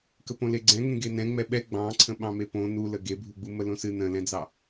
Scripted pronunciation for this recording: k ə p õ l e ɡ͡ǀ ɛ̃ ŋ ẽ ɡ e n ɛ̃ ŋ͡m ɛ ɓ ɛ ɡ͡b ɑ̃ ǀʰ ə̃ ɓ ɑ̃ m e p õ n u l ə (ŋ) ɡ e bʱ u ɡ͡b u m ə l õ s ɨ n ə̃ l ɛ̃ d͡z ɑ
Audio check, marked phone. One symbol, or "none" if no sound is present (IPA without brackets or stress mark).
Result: none